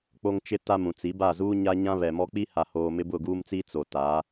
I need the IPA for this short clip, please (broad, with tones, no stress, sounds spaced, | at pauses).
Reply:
k͡p o˦ ŋ t͡ʃ ɪ˦ t a˦ m ũ˨ t͡s i˨˦ b a˦˨ z uː˦ ɲ a˦ ɲ ã˦ β ɛ˨ m ɔ˦ k͡p i˦ h a˨ h oː˨ m ɪ˦ b ʊ˦˨ ɡ uː˦ m t͡s i˦ t͡s o˨ t a˨˦